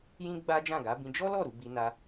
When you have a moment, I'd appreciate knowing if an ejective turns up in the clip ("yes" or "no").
no